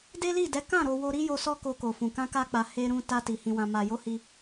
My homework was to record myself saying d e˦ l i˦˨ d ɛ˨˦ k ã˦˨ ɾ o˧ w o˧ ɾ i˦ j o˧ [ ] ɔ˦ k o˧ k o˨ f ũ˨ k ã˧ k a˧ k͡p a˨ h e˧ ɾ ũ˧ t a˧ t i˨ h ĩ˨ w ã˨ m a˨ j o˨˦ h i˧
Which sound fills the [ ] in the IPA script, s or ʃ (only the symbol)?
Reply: s